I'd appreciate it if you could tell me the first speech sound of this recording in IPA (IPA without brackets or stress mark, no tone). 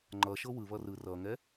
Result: ŋ͡ǃ